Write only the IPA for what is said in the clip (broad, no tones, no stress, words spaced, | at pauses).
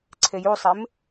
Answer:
ǀʰejusˤem